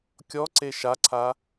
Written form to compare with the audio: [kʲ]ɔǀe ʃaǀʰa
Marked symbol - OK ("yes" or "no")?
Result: yes